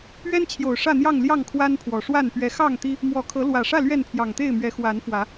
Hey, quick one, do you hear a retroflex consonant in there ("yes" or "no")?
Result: yes